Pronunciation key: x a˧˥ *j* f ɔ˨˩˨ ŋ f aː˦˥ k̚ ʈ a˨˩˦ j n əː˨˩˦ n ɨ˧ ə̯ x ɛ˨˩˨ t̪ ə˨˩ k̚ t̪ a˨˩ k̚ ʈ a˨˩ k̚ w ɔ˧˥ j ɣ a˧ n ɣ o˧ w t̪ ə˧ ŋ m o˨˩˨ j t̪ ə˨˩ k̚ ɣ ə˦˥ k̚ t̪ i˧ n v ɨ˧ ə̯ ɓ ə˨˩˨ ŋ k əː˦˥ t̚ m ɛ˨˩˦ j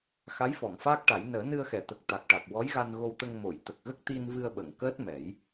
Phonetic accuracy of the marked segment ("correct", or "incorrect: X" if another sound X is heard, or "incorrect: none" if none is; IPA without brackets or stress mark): correct